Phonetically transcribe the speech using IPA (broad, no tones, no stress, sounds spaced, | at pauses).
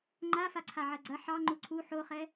ŋ͡ǃ a f a ǀʰ a ʕ ɐ ɡ͡ǀ ɐ ħ ɑ ŋ͡ǃ u ǀʰ u ħ o χ ɛ